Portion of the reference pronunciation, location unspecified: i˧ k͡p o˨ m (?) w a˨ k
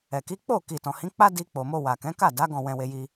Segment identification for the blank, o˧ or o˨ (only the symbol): o˧